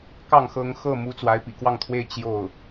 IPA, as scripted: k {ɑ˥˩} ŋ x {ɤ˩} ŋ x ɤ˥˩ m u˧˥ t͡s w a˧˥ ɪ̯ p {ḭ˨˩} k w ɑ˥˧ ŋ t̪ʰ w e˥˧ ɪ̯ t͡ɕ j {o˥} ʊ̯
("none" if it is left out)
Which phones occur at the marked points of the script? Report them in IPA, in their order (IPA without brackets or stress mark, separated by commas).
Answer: ɑ˥˩, ɤ˧˥, ḭ˨˩, o˥˩